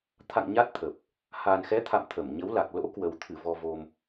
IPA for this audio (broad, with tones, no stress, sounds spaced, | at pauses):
t̪ʰ a̰˧˨ ŋ ɲ a˦˥ t̚ t̪ʰ ə˨˩ p̚ | h aː˨˩ n x ɛ˨˦ t̪ʰ a̰˧˨ m t̪ʰ ə˧˩ m ɲ ə˨˦ w l a˨˩ k̚ l o̰˧˥ k w ə˨˩ w t̪ʰ ɨ˧˩ v ɔ˧ v o˧ m